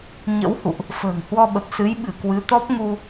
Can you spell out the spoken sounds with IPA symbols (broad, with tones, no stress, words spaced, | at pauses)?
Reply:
ɲə̰˧˥whṵ˧˨ʔ | fə̤ː˨˩ŋ hwɔ˧ɓə˨˩p̚ sɨ˨˦j ɓɨ˧˩kwɨ˨˦t̪ɔ˦˥p̚ŋu˧